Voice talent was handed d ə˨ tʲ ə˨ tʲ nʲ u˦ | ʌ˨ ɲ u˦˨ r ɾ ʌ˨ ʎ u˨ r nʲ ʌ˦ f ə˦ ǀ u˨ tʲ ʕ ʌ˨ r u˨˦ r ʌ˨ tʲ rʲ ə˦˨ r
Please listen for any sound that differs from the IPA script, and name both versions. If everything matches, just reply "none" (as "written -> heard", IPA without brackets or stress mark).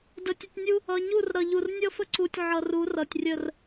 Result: none